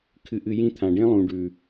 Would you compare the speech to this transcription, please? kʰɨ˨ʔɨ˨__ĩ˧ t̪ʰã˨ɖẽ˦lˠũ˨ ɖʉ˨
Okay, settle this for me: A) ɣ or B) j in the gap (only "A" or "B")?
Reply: B